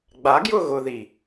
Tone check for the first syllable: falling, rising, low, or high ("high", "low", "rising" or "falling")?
rising